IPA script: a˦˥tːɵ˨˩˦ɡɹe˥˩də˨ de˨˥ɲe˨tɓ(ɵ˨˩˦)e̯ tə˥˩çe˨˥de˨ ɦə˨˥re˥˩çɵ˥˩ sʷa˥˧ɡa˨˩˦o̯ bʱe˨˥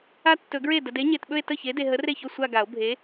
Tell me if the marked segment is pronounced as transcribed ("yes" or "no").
no